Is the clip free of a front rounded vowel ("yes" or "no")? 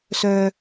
no